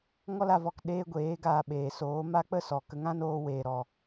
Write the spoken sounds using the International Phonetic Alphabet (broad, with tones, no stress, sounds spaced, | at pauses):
ŋ ɔ˦ l a˧ v ɔ˨ k ɗ eː˧ ɡʷ eː˨˦ ɡ aː˧ ɓ eː˨ s oː˨˦ m a˦ k͡p ə˦ s ɔ˨ k ə˧ ŋ ã˦ n oː˧ w eː˨ ɾ ɔ˨